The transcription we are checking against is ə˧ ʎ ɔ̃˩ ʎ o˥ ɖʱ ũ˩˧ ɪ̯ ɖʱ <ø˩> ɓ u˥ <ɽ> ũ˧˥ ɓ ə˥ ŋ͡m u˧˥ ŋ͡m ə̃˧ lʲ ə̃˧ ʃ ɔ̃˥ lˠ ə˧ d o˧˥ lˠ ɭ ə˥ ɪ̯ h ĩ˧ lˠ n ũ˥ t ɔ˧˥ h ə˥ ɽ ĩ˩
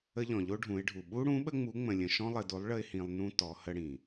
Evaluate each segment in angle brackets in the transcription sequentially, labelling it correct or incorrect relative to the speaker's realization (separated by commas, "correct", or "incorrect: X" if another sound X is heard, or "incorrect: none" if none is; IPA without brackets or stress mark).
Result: incorrect: u˩, correct